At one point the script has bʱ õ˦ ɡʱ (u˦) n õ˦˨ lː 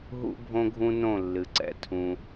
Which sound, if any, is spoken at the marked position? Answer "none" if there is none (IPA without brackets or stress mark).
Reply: ũ˦